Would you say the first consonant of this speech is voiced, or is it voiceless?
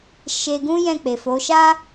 voiceless